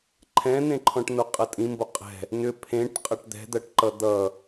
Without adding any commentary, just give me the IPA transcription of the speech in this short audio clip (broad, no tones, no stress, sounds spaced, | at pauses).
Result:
ǃʰ ɛ̃ n ẽ ǃʰ ɔ̃ ʈ n o qʼ ɐ tʼ ĩ m b o qʼ ɛ̤ | n ʏ pʰ ẽ ʈ qʼ ɐ ʈ d̪ ɛ̤ d̪ ɐ ʈ ǃ ʌ d̪ ʌ